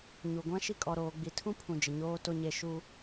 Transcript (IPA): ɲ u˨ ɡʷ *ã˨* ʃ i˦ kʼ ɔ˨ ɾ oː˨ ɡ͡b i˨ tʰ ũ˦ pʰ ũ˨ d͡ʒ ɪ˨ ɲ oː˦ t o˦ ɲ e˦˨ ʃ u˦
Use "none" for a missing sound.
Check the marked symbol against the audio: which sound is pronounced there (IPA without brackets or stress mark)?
ã˦